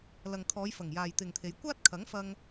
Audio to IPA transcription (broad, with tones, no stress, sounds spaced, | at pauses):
l ɐ˨ ŋ kʰ ɔː˨˧ j f ɐ˨˩ ŋ j aː˨ j t̪ ɪ˨ ŋ t̪ʰ e˨˧ j kʷ aː˥ t̚ kʰ ɐ˨˥ ŋ f ɐ˧ ŋ